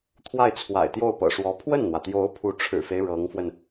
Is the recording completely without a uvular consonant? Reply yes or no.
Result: yes